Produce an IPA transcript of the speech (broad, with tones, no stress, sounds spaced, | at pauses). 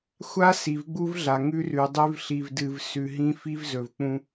xʷ a˦ s i˨ v ɡ͡b u˦ v ɮ a˨ ŋ ʉ˦ r ʉ˨ dˤ ʉ˦ v ɬ i˨ v d ɨ˨ v s ʉ˨ ɦ ĩ˦ f i˦ v z ɵ˨ v k͡p ũ˦